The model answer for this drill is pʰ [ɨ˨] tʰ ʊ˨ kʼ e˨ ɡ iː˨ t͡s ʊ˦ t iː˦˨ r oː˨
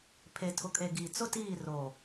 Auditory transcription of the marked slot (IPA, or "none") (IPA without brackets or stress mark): e˨